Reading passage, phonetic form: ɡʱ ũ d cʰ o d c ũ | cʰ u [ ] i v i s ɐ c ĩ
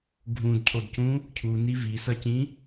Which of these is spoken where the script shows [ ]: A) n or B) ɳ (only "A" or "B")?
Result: A